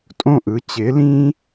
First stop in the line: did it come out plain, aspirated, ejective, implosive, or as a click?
ejective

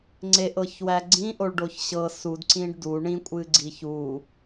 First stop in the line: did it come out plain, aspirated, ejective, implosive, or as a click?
click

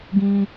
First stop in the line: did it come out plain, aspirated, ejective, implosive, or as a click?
plain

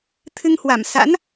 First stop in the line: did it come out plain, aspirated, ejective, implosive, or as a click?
aspirated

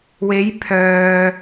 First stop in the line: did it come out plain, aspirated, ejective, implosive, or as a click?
aspirated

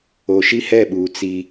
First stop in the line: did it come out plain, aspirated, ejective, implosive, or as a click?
implosive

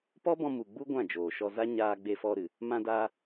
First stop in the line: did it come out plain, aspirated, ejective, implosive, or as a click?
plain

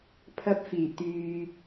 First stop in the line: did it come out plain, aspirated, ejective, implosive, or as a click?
aspirated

